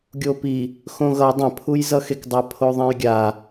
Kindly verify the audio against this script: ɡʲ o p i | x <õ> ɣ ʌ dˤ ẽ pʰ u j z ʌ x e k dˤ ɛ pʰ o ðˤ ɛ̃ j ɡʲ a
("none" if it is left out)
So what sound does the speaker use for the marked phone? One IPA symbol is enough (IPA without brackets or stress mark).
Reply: õ